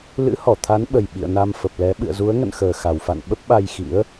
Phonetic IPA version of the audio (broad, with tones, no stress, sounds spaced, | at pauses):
l ɨ̰˧˥ h ɔ˧˩ t̪ʰ a˨˦ n ɓ ə˨˩ j ɓ ḭ˧˨ ə̯ n a˧ m f ə˨˩ p̚ l ɛ˨˦ ɓ ɨ̰˧˨ ə̯ z u˨˦ ə̯ ŋ ə̰˧˨ n x əː˨˩ x a˨˩ w f a̰˧˨ n ɓ ə˦˥ p̚ ɓ a˧ j x ḭ˧˥ ə̯